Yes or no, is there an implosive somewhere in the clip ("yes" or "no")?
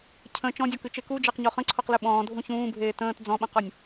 yes